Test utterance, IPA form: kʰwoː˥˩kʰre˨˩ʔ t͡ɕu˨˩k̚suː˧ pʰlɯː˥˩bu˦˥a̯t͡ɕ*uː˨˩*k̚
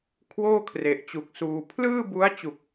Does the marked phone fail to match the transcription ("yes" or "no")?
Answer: yes